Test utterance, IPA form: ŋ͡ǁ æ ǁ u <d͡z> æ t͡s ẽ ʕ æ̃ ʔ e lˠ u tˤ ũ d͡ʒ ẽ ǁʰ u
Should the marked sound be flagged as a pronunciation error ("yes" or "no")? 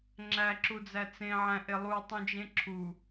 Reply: no